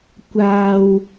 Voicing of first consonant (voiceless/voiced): voiceless